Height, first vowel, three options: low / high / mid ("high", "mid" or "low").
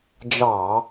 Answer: low